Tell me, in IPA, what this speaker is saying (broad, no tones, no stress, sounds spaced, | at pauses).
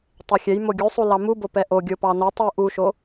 tˤ ɛ xʲ ɛ j m o ɡʲ u sˤ u l ɑ m u b o p ɛ ʔ o ɡʲ o p ɑ n o tˤ u ʔ u ʃ o